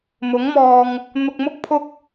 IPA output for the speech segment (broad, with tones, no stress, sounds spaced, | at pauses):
m ʊ˨˥ ŋ m ɔː˧ ŋ | n̪ ʊ˧ k̚ m ʊ˥ k̚ pʰ ʊ˥ k̚